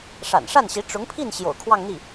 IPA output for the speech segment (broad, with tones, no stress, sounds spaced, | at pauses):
ʂ a̰˨˩ n ʂ a˥˩ n ɕ i˧˥ ʈ͡ʂ ʊ˧˥ ŋ pʰ i˥˩ n ɕ j o̰˨˩ ʊ̯ kʰ w ɑ˥˧ ŋ n̪ i˥˩